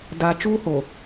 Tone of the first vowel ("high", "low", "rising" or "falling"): low